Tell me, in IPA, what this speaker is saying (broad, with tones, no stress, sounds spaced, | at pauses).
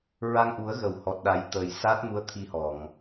ɹ a˧ ŋ ʔ u˨˩˦ ə̯ ɣ ə˨˩˨ w h ɔ˨˩ t̚ ɗ a˨˩˦ j t̪ ə˨˩ j s aː˦˥ t̚ m u˧˥ ə̯ t̪ʰ i˧ h ɔ˨˩˨ ŋ